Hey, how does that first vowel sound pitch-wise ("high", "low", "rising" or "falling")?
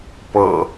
low